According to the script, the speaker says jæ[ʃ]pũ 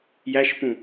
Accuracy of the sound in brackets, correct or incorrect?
correct